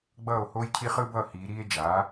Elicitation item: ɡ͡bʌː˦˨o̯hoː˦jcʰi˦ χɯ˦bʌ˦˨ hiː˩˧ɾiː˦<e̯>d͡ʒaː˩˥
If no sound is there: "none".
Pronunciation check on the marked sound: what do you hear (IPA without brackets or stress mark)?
e̯